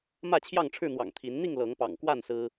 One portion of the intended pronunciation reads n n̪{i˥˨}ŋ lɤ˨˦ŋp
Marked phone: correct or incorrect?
correct